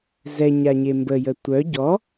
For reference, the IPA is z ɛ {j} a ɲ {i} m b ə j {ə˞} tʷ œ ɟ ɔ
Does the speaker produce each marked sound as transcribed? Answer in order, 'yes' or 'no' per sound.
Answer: no, no, no

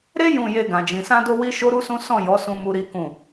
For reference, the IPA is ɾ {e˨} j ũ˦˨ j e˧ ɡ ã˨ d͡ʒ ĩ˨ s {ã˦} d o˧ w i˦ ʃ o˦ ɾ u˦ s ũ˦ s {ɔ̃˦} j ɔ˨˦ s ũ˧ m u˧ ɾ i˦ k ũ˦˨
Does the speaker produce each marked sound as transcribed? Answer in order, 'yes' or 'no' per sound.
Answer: no, no, no

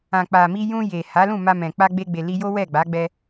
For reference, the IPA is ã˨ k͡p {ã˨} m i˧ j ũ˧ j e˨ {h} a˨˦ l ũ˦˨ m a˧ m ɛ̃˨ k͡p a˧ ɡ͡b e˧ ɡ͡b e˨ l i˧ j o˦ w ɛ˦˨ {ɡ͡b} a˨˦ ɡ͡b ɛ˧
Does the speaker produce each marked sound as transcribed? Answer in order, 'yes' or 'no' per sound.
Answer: no, yes, yes

